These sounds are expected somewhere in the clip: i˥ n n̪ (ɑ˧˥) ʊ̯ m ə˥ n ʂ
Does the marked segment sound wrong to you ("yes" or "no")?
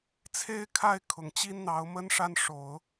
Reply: no